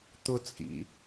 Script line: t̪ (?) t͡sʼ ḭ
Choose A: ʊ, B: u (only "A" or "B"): A